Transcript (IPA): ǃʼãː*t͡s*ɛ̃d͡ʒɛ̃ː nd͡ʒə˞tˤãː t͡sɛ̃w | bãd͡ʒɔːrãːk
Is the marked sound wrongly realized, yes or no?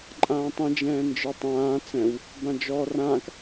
yes